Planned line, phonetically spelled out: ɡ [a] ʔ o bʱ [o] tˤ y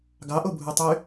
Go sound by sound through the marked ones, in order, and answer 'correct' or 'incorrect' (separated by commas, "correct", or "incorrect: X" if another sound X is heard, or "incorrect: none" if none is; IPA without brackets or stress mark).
incorrect: ɑ, incorrect: u